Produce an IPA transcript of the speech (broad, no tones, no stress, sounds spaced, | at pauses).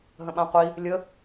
ɦ ə̃ ɓ ã qʷ i | lʲ ə